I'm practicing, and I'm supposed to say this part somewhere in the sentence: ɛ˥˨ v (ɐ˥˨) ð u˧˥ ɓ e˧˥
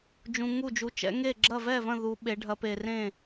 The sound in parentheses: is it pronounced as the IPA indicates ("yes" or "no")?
no